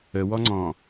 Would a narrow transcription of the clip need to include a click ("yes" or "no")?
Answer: yes